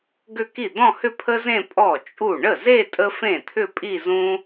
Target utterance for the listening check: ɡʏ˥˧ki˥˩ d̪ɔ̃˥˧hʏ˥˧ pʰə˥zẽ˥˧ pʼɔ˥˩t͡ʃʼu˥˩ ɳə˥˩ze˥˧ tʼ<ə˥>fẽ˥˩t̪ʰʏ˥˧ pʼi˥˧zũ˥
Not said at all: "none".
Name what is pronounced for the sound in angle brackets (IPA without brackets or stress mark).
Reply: ə˥